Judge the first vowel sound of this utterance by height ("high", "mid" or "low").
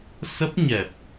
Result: mid